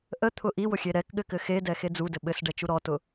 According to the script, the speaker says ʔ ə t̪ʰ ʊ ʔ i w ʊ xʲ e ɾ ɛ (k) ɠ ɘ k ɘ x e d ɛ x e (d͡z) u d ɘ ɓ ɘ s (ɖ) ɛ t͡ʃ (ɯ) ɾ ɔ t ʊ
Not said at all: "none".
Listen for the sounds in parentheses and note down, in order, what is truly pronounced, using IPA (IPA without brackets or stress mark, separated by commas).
k, d͡z, ɖ, u